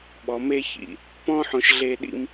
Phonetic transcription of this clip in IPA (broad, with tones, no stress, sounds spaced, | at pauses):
ɓ ɔ˨ m e˧ ç ḭ˨ | p ɔ̃˦ ħ õ˧ ʃ ɮ e˧ ɗ ḭ˧ m